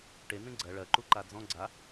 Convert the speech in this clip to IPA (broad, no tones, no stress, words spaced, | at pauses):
ʈe n̪ẽɡ͡ǀɜ ɭɜ ǃuǃad͡zɔ̃ ɡ͡ǀa